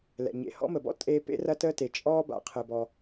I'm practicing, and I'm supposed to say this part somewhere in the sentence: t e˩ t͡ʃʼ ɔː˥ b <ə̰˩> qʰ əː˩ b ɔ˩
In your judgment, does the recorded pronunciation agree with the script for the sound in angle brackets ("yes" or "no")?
no